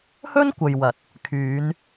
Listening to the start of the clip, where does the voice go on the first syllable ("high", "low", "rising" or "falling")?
high